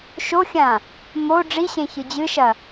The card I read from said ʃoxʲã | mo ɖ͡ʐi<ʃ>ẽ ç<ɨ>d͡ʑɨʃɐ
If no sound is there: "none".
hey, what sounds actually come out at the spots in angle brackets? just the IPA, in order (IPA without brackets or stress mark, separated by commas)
ɕ, ɨ